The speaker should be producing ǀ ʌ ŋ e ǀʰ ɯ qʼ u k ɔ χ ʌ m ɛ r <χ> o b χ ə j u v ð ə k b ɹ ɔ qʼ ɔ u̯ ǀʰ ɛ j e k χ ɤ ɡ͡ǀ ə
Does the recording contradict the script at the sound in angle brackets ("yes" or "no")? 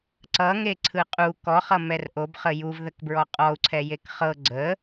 yes